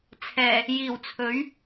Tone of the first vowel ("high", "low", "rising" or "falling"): low